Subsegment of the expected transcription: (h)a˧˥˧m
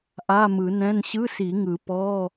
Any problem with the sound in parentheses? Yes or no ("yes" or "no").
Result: yes